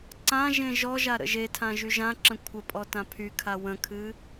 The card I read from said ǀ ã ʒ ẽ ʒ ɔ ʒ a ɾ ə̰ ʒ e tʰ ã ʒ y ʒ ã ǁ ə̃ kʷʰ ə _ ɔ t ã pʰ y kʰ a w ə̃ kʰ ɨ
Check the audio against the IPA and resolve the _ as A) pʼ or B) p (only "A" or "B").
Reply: A